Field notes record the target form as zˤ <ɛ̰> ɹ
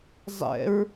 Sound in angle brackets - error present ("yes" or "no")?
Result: no